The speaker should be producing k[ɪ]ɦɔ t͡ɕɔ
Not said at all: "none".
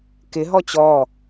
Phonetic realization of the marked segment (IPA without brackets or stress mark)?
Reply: ɪ